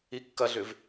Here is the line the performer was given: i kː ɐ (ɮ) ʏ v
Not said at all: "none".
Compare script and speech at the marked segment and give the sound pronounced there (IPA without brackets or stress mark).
ɮ